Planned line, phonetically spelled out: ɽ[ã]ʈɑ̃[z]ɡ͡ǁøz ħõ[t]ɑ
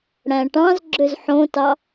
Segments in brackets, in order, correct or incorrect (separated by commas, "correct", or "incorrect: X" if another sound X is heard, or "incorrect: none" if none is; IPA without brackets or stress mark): incorrect: æ̃, correct, correct